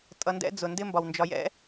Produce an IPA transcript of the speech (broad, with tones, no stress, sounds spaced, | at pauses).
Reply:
tʼ ʌ˨ n d ɛ̰˦ d͡z ʊ˩ n d ɪ˦ m b ɒ˩ w n d͡ʒ ɒ˨ j ɛ̰˥